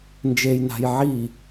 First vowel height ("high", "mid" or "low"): mid